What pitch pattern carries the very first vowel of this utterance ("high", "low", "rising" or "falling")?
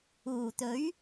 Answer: low